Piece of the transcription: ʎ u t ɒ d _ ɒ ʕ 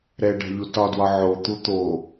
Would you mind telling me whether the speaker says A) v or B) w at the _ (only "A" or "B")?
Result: B